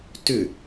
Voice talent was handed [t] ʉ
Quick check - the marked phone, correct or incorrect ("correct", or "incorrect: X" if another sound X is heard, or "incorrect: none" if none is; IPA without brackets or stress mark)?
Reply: correct